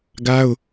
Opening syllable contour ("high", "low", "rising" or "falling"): high